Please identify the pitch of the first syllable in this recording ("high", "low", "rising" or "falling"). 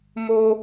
high